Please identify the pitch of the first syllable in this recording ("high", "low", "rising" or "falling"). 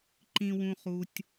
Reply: low